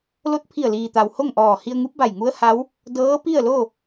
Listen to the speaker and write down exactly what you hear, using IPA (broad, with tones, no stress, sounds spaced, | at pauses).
l o˧˥ t̚ pʰ i˧˩ ə̯ l iː˩ t̪ a˩ w h o˥˨ ŋ ʔ ɔː˧˩ h i˧ ə̯ ŋ u˧˥ p̚ b a˧˩ j ŋ u˧˥ ə̯ h a˧˥ w | d ɤː˧˥ p i˥˨ ə̯ l o˥˨